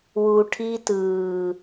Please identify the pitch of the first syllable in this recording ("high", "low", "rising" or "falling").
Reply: low